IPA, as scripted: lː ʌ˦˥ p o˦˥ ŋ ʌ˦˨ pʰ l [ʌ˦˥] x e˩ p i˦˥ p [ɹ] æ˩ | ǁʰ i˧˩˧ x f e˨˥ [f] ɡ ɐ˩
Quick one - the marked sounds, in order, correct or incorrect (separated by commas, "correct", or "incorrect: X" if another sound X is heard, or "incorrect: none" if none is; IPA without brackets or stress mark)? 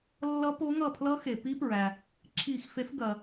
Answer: correct, correct, correct